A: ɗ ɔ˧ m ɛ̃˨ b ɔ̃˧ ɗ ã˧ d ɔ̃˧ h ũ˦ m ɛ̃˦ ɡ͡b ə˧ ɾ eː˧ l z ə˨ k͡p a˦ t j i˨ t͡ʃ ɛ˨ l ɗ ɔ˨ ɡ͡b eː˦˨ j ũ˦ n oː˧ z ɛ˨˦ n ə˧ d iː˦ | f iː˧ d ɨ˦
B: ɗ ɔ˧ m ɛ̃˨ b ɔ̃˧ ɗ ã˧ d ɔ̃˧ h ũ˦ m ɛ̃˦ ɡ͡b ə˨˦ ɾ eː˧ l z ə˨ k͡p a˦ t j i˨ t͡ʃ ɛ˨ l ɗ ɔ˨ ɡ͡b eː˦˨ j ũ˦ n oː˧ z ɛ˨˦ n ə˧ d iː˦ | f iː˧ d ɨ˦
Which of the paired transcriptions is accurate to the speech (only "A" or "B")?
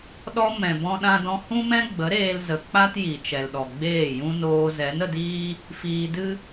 B